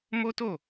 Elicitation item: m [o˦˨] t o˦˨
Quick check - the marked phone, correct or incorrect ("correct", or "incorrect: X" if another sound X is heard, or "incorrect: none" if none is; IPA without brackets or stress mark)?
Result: incorrect: o˦